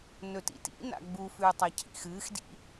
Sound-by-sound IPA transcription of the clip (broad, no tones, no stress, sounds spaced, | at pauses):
n ɵ t ḭ t ḭ n a̰ ɡ͡b u f ʉː tˤ a cʰ ḭ x ɨː x d ḭ